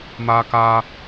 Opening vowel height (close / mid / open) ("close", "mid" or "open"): open